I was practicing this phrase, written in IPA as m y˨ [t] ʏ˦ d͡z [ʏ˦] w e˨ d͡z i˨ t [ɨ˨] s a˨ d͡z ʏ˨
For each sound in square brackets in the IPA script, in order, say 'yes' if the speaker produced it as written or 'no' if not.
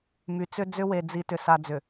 no, yes, no

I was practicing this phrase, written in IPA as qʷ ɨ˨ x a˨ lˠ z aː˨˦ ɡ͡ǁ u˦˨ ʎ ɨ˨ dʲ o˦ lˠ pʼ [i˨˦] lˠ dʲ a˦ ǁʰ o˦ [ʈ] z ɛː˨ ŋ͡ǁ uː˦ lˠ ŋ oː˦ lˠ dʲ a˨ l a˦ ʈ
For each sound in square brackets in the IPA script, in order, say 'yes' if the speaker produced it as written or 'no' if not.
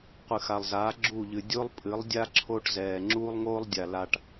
no, yes

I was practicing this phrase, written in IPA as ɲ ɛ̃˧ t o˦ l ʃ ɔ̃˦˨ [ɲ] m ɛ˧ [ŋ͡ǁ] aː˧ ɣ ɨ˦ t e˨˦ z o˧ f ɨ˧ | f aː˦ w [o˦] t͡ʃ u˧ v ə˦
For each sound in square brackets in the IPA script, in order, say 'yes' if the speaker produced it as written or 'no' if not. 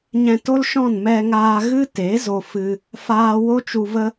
no, no, yes

